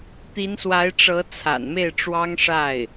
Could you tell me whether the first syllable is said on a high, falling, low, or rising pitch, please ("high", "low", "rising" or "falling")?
rising